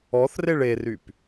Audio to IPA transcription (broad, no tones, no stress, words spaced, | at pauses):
ɔθreɭ eryp